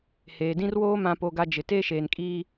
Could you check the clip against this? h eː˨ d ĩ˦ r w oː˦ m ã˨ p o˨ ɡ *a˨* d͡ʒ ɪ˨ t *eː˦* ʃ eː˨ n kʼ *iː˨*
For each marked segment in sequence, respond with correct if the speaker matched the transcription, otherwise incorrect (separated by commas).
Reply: correct, correct, incorrect